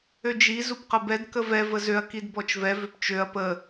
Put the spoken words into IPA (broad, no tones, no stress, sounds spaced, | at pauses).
ø d͡ʒ i z u p q ə b ɛ d k ə v ɛ v ə z ø ɐ̯ k i d b ɔ t͡ʃ v ɛ v ø p t͡ʃ ø ɐ̯ p ə